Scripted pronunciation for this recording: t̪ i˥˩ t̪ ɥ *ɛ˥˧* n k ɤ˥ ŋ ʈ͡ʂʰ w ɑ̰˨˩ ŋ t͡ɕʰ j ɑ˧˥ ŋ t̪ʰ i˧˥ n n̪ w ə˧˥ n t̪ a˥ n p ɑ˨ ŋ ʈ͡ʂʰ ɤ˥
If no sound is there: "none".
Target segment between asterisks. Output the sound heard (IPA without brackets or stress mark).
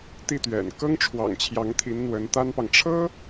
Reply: ɛ̰˨˩